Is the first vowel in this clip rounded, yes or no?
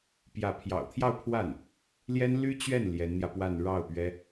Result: no